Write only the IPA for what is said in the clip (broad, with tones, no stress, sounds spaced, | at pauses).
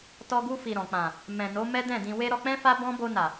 t ɔ˧ ɡ u˧ f i˨ ɾ ɔ̃˨ k͡p ã˨ | m ɛ̃˨ n o˨˦ m ɛ˦ d ɛ̃˦˨ d ĩ˧ w e˦ ɾ ɔ˧ k͡p ɛ̃˦ f a˦ b ɔ̃˦ b o˧ n a˨